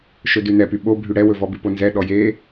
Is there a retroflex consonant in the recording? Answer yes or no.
yes